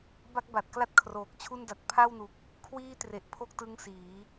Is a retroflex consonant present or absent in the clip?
absent